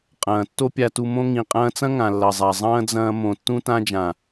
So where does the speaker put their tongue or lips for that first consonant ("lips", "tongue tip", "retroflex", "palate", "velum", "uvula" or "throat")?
uvula